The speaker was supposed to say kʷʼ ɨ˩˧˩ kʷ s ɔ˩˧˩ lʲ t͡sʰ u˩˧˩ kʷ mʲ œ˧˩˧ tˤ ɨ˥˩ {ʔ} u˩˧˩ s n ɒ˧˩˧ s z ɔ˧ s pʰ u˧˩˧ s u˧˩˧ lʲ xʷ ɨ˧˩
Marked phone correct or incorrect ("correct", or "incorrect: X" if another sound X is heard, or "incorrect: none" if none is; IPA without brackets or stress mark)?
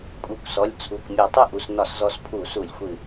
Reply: correct